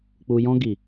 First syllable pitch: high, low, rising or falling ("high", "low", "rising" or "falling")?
low